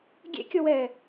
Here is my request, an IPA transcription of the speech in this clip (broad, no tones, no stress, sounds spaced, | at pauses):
ɡʲ ḛ kʲ ɔ w ɛː